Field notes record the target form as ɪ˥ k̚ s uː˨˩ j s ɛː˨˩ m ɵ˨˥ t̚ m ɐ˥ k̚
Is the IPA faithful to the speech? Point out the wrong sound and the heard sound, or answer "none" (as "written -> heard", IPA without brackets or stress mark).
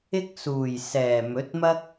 none